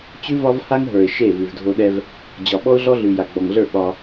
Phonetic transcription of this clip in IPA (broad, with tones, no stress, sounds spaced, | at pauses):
t͡ɕ ʉ˦ v ɒ˦ v h a˦ ŋ ɦ ə˞˨ ɪ̯ ʃ e˦˨ v ʉ˨ v dʱ o˦ ɗ ɛ˦ v | d͡ʑ ɒ˨ ɓ ɔ˦ ʊ̯ ɮ ɔ˦ ɮ ʉ˨ j a˨ ɡ͡b ɔ˨ ŋ ɮ ə˞˦˨ ɓ ɒ˦